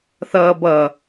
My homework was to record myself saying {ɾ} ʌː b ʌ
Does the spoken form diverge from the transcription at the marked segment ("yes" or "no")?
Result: yes